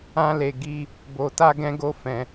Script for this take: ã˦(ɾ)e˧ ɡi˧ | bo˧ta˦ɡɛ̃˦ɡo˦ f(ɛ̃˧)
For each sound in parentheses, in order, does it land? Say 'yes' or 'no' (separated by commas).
no, yes